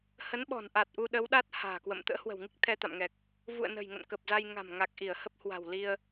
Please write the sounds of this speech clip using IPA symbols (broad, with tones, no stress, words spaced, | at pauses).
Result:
hə˨˦nɓɔ̤˨˩n ʔa˨˩t̚ʔu˧ɗə˨˦wɗa˦˥t̚ ha̤ː˨˩kwə̰˧˨m t̪ə̰ː˧˥hwə̤˨˩wŋi˦˥k̚ t̪ʰɛ˧t̪a̰˧˨mŋɛ˨˩k̚ | vṵ˧˨ə̯nə̤˨˩jŋə̰˧˨n kə˨˩p̚za˧jŋa̤˨˩m ŋa˨˩k̚ʔi˧˩ə̯ hə˦˥p̚hwa̤˨˩wli˧ə̯